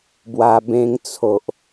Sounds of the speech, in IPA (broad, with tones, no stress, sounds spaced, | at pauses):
b w a˧ b ẽ˧ ŋ t͡sʰ o˨ ʔ